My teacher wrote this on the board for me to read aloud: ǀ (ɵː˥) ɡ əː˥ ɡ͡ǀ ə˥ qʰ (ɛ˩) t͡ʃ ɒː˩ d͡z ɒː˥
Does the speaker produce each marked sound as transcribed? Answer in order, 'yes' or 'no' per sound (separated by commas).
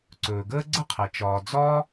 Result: no, yes